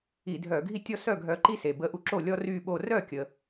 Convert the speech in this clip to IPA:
i˧˩˧ dʱ œ˧˩˧ ɡʱ i˦ tʲ ɔ˥˩ s œ˥˩ ɡʱ œ˨˥ ǃ i˦ s e˩ b ə˨˥ ʔ u˧˩ ǁ o˥˩ lʲ ɔ˦ r y˧˩ ɓ o˧˩ r œ˥˩ kʲ ə˧˩

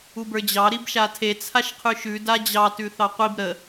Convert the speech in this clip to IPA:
u b ə˞ d͡ʑ ɑ ɾ i b ʃ a tʰ e t͡sʰ a ʃ qʰ ʉ ʃ ʉ d a d͡ʑ ɑ t ʉ θ ɑ qʷ i b ɾ ə

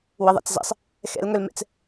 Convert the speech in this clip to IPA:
w ə ðˤ ɛ̰ t͡s z ɛ̰ sˤ | x ɛ̰ l ŋ œ l m ɛ̰ t͡s

